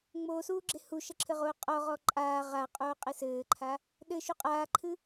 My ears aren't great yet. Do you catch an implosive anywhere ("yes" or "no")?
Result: yes